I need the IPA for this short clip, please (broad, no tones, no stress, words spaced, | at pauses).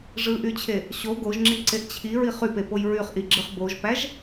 ʐɯʔyt͡ɕʰe | ɕo ɡoʒŋ͡ǁiǀeʔ t͡ɕʰiɹiχ ypepoj ɹyχʔiɡ͡ǁɯχ boʒpæʒ